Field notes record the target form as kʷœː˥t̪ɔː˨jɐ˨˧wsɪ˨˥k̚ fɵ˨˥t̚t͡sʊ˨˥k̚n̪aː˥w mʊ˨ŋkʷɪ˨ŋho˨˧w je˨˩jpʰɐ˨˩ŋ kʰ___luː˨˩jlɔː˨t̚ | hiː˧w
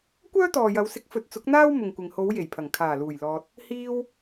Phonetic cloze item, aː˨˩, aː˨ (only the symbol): aː˨˩